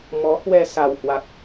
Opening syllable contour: rising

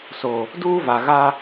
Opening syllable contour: low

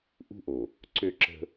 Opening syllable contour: high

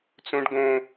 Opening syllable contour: high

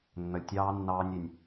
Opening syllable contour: low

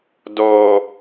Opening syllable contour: low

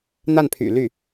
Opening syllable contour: falling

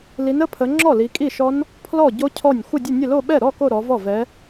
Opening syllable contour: rising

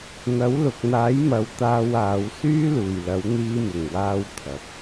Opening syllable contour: rising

